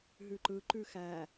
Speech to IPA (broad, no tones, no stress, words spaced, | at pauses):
ɦʉǃɯǃʉ xæ